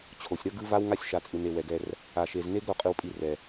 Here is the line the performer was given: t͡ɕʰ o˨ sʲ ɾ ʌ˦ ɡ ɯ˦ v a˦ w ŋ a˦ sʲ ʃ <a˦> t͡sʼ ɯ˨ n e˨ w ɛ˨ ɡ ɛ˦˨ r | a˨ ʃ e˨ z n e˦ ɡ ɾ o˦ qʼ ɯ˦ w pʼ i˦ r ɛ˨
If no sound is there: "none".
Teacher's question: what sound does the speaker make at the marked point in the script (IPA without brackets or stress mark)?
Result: a˨